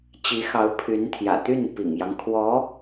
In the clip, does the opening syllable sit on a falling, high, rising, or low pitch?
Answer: rising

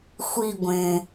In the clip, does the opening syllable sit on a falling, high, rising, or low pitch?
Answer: falling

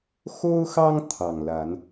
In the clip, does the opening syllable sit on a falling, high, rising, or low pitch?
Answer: high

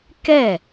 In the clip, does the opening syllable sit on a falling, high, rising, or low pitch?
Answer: falling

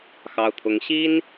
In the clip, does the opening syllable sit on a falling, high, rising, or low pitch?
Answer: high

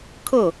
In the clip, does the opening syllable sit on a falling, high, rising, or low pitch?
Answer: falling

